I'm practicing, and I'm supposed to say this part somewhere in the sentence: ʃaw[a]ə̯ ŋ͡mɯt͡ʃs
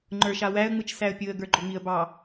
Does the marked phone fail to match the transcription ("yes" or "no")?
yes